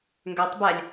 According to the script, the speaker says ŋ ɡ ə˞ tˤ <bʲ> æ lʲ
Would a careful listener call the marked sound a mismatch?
yes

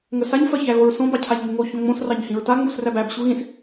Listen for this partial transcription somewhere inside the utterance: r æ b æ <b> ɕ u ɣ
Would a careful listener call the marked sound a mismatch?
no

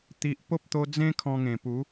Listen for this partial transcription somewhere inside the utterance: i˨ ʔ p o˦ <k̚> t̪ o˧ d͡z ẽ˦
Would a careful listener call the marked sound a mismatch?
yes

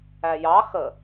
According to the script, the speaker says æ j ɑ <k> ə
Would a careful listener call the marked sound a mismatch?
yes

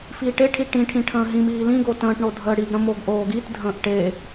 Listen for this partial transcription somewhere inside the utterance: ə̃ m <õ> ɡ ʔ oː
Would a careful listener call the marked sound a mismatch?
yes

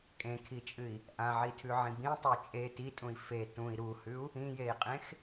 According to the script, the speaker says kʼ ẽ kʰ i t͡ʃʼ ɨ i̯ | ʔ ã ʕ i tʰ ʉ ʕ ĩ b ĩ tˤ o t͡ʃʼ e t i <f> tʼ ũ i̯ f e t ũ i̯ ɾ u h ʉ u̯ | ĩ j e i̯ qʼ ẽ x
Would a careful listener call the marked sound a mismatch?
yes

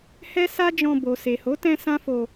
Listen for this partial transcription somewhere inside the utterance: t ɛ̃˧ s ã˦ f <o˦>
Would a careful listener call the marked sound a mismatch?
yes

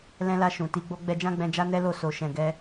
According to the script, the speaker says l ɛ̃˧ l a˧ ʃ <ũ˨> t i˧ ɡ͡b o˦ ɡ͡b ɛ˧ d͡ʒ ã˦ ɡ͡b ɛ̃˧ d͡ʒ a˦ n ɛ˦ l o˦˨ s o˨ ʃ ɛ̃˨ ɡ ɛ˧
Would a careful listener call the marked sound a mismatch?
no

